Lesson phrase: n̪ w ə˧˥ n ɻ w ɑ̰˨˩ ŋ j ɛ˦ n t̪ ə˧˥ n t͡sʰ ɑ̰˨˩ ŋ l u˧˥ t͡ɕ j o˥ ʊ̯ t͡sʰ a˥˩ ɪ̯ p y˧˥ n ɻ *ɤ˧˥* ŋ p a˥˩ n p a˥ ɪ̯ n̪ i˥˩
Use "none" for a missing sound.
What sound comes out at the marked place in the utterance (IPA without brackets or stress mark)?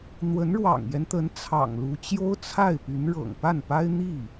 ɤ̰˨˩